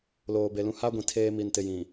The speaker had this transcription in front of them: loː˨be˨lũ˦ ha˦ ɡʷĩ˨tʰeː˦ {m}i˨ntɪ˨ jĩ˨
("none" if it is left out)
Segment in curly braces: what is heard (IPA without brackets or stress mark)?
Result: m